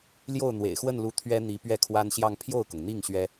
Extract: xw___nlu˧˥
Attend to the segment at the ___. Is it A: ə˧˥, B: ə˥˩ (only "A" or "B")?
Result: B